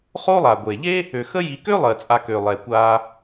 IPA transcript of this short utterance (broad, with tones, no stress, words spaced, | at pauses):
χo˦lˠa˩ ɡʷe˩ ʎe˥ | ø˩xə˦ ji˨kø˥lˠɜ˩ t͡sʼa˨kø˩lˠɛ˩ kʷa˨